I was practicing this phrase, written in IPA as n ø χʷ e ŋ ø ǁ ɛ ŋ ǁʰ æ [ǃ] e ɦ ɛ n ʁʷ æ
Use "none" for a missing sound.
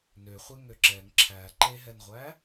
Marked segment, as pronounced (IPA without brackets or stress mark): ǃ